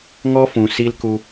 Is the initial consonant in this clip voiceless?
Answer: no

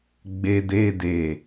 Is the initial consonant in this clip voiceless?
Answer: no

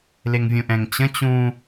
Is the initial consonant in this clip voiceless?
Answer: no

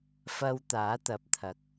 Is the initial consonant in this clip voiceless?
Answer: yes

